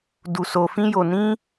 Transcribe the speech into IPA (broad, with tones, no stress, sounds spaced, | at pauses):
d u˧ s o˧ f ĩ˦ j o˧ n ĩ˦